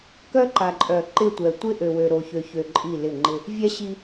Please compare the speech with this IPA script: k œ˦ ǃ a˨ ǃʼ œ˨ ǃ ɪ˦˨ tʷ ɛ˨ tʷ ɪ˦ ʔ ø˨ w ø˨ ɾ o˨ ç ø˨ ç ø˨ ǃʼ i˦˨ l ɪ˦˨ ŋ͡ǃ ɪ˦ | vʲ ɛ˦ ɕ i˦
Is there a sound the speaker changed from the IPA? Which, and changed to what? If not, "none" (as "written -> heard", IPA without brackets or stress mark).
none